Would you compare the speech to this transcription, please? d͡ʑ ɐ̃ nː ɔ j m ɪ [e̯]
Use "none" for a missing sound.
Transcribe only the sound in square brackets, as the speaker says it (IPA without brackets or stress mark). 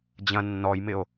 o̯